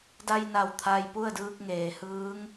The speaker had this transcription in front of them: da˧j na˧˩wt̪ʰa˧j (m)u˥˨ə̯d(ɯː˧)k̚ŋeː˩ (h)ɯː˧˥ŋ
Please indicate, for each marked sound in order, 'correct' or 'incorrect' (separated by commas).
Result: incorrect, correct, correct